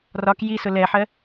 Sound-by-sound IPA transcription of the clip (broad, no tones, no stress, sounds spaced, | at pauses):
r ɒ k j i s ʊ l ɛ ħ ɜ